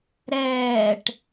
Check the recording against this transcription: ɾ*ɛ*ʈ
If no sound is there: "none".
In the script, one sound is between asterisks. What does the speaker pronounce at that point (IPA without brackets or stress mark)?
ɛː